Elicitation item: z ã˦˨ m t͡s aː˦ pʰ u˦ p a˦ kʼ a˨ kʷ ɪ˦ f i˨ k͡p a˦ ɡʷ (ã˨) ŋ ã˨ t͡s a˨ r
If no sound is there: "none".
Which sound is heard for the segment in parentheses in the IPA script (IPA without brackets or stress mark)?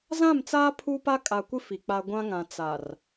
ã˦